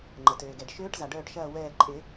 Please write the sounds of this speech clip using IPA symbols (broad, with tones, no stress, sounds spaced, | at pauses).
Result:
ŋ͡ǃ ə˩ t øː˩ ɡ ɛ˩ ɖ ʃ øː˦˥ ʈ z a˩ ɖ œː˦˨ ʈ ʃ ɐː˦˨ w ɛː˦˨ ǃʼ ɪː˨˩˦